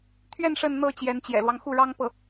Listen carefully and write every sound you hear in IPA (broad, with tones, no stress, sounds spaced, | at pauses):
t̪ʰ ɥ ɛ˥˧ n ʂ ə˥˧ n n̪ ɤ˥˩ t͡ɕ j ɛ˧˥ n t͡ɕ j ɛ̰˨˩ l w ɑ˦ ŋ x u˥˩ ɻ ɑ˥ ŋ p ɤ˥˩